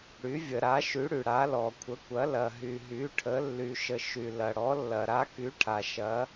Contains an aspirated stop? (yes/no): yes